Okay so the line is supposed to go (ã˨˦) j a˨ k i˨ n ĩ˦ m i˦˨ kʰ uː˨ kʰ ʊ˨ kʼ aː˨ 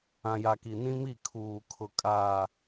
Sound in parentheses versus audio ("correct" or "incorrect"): incorrect